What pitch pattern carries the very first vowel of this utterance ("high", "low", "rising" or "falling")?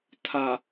low